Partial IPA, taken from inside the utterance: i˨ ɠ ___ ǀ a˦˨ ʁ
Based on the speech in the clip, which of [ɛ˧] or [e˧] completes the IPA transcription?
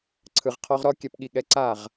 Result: ɛ˧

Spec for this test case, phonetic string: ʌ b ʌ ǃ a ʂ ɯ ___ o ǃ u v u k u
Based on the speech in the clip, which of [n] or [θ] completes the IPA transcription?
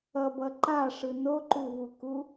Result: n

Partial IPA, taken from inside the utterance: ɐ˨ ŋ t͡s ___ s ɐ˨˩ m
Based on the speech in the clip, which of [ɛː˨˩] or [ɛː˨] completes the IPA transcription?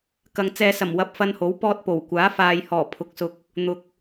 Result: ɛː˨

